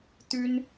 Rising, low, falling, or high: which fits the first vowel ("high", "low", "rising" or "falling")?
high